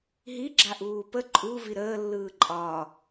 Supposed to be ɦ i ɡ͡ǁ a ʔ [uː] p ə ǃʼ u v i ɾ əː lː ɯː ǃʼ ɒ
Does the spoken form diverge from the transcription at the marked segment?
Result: no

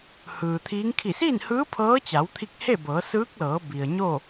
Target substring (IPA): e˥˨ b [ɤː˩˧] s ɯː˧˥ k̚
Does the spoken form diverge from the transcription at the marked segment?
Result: no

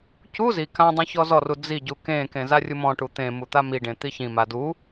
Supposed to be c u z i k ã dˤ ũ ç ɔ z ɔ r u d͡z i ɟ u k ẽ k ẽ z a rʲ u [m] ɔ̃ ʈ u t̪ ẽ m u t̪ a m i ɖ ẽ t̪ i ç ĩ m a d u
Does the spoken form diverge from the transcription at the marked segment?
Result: no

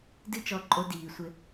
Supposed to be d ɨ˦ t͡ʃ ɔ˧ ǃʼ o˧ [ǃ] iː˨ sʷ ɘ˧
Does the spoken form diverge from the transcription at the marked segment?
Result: yes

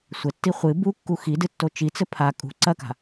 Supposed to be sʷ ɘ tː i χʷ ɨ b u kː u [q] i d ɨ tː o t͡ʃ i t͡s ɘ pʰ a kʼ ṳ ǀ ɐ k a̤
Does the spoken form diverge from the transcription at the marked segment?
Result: yes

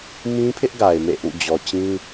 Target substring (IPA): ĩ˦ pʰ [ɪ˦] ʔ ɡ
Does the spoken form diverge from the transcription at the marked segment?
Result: no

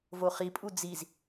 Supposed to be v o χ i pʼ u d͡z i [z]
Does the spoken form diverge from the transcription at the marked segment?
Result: no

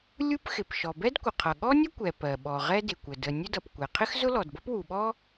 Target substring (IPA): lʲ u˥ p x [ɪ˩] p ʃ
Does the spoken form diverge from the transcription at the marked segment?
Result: no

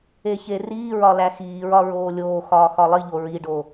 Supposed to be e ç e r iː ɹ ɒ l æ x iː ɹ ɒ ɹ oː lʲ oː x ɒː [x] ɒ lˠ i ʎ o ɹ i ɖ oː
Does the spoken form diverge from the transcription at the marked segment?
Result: no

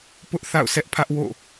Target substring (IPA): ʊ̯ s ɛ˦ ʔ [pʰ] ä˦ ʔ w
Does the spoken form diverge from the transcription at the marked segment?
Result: no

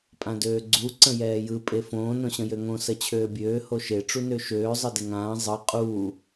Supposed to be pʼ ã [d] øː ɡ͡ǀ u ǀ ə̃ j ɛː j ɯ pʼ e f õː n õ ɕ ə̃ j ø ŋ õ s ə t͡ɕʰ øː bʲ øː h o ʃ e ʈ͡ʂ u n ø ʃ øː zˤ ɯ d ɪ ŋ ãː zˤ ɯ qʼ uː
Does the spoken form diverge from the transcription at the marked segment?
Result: no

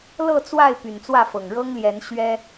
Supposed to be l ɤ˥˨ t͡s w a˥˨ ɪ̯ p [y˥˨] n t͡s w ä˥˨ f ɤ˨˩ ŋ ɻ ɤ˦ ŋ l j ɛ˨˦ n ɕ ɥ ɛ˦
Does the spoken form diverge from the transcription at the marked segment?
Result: yes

